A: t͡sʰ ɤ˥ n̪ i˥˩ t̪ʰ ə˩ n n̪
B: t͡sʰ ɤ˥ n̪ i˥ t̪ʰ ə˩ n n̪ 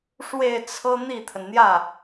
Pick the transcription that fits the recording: A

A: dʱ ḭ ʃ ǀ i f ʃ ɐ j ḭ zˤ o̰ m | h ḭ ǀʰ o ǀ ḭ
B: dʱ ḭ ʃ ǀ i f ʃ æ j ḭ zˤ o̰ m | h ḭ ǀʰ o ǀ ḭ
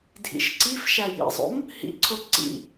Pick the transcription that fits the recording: B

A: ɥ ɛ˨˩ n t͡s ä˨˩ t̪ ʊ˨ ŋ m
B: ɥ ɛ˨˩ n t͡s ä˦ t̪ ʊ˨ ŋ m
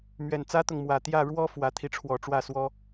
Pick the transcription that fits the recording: B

